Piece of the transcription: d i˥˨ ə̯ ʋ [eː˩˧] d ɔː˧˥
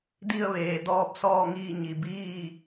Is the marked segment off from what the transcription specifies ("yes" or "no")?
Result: no